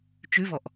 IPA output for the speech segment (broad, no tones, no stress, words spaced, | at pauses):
t͡ʃʉvɔʔ